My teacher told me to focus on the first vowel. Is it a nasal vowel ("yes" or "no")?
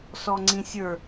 no